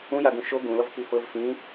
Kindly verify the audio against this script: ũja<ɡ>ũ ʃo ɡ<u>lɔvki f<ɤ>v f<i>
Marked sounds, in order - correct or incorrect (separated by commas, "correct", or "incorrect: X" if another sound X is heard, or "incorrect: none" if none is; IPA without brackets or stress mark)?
correct, incorrect: ũ, correct, incorrect: ĩ